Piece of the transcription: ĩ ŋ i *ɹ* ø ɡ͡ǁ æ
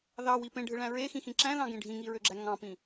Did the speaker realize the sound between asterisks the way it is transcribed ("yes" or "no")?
yes